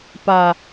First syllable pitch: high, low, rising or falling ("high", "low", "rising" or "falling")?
low